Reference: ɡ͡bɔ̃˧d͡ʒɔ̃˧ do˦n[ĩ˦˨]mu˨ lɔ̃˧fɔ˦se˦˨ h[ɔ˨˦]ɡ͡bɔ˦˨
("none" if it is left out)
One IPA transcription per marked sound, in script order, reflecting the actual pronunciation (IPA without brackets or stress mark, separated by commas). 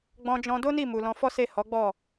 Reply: i˦˨, ɔ˨˦